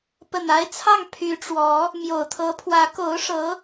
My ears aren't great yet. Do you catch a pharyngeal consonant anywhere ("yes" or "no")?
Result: no